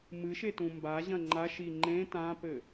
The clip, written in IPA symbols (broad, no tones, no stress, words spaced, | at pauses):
mɨʃe tũmbaʑɐ̃ ŋ͡ǃaʃi ŋ͡ǃẽ tãpɘ